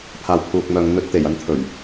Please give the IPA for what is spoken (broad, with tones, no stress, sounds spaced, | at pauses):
pʰ aː˨ w pʰ uː˨ k̚ m œː˨ ŋ n̪ ɵ˨˥ t̚ t̪ e˨˩ j ɐ˨ n t̪ʰ ɵ˨˩ ɥ